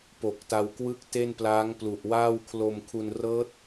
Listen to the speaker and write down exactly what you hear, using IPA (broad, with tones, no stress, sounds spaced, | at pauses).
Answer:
p o˨˩ k̚ t a˧ w k w ɯ˥˩ k̚ t e˥˩ n p l aː˦˥ ŋ p l u˨˩ ʔ w aː˥˩ w kʰ l o˧ m kʰ u˧ n r ɤː˦˥ t̚